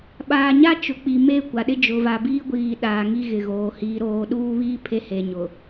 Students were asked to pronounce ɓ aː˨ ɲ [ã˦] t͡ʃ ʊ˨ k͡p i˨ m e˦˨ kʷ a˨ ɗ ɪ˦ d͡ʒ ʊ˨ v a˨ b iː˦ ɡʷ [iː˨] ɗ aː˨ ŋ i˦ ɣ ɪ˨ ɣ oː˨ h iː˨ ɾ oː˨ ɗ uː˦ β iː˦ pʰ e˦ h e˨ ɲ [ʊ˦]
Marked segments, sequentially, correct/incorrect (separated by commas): incorrect, correct, incorrect